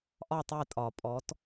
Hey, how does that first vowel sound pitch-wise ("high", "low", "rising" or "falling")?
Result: falling